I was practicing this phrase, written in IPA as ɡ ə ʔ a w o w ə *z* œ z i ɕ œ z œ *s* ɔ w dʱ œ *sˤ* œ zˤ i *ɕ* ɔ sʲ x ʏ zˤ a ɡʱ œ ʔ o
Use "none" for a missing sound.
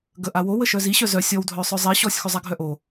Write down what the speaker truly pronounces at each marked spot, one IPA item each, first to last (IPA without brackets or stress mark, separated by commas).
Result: ʃ, sʲ, sˤ, ɕ